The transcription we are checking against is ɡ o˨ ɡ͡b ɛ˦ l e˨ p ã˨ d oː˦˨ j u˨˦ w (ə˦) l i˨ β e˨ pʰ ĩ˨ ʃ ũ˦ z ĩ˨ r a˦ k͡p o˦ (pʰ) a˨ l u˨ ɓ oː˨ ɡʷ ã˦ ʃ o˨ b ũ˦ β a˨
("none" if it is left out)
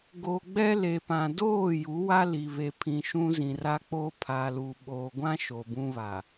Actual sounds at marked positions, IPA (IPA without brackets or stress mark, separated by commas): a˦, pʰ